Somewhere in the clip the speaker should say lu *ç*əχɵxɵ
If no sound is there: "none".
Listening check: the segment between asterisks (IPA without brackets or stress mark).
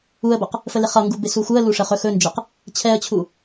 ʂ